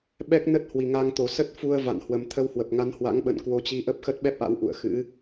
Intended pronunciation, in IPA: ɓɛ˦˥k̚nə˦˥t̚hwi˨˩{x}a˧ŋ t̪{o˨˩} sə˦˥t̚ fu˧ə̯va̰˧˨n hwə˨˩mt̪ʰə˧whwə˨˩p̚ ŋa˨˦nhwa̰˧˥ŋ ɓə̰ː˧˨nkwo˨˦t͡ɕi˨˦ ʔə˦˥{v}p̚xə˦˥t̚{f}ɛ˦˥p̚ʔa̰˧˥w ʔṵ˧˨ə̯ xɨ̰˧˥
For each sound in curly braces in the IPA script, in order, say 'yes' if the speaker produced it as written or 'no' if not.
no, yes, no, no

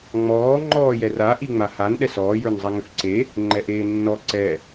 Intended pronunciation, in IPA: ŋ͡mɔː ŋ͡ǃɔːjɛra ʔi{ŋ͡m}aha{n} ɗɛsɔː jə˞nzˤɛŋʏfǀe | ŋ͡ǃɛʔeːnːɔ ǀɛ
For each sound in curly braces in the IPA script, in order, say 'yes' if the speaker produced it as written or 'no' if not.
yes, yes

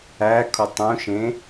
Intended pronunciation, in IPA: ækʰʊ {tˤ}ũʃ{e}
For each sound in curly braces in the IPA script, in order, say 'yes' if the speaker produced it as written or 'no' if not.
yes, no

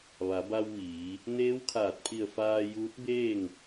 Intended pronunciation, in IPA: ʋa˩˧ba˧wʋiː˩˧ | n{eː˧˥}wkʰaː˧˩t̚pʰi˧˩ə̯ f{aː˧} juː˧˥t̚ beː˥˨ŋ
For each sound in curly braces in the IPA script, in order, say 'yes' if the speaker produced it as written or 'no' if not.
yes, yes

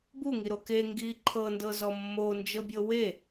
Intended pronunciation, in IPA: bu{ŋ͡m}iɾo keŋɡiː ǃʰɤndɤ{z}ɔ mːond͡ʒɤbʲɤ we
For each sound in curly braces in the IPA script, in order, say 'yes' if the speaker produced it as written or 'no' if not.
no, yes

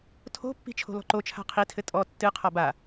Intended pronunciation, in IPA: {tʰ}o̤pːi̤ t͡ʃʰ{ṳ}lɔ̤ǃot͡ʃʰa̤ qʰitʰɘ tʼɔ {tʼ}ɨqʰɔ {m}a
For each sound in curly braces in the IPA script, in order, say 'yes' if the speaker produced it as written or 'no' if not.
yes, no, no, no

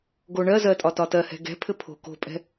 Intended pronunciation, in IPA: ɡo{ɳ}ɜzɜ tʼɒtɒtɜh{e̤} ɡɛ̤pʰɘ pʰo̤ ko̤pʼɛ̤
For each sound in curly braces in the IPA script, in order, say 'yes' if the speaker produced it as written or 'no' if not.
yes, no

